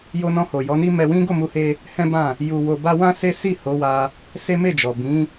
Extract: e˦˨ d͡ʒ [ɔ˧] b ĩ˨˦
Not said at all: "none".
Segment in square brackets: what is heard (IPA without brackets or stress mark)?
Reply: ɔ˨